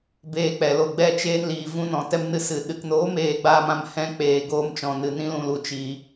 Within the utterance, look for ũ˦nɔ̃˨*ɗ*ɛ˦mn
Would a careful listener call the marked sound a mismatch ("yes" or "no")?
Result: yes